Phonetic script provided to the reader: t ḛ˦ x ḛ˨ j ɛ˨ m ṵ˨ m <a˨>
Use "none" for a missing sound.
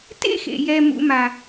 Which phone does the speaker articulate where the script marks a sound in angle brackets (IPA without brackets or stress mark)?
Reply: a˨